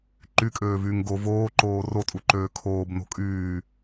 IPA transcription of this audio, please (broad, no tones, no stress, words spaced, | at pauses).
ǃykʼøːvyːŋ ɡo voːǃoː rotʼuǃøː kʰoːbno̤ kʼyː